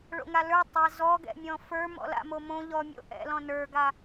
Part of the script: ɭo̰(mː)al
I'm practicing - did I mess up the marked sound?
yes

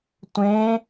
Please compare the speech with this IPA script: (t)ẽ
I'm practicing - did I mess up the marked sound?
yes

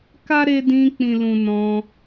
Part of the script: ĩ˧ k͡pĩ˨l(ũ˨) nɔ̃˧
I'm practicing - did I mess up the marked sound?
no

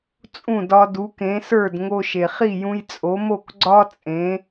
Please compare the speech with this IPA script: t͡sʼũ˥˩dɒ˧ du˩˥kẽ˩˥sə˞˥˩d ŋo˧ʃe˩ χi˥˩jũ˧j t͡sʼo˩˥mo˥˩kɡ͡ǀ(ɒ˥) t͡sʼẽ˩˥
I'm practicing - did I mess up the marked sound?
no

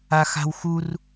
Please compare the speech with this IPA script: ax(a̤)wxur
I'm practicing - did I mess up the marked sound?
no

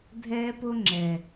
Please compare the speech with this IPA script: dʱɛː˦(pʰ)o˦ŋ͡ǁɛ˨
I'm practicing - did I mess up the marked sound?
yes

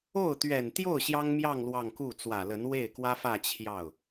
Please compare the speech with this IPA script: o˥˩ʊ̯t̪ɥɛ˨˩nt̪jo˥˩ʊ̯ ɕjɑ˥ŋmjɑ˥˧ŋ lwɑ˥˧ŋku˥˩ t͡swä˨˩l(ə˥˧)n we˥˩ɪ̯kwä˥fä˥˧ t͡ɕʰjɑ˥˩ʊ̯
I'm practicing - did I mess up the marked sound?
yes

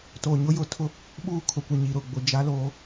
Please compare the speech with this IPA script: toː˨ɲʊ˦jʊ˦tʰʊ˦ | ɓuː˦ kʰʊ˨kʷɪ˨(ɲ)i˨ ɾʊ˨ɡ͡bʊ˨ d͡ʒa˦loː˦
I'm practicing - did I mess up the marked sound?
no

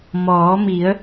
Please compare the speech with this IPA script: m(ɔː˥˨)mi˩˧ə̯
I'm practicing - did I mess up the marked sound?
yes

